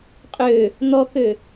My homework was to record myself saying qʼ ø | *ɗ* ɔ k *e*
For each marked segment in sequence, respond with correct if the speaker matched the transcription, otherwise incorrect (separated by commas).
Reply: incorrect, incorrect